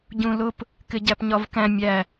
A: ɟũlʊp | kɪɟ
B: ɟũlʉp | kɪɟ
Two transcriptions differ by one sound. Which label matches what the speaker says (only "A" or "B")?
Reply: A